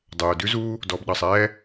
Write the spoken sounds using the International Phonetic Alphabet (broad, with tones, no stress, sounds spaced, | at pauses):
dˤ øː˩ d ʉ˧ z uː˧ | d ɔ˩ b ɗ ɑ˩ sˤ ɛː˧